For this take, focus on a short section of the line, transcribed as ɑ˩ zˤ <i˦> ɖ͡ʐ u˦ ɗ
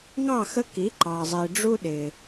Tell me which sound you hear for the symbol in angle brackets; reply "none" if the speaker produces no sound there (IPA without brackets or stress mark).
i˩